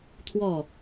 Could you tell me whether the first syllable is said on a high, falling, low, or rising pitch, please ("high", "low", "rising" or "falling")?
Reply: falling